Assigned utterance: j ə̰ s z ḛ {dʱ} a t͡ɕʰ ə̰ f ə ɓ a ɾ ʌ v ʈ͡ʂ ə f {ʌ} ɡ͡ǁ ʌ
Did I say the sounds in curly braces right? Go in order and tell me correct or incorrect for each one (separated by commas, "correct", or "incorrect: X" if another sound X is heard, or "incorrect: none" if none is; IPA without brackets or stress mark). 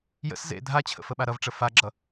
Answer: correct, incorrect: a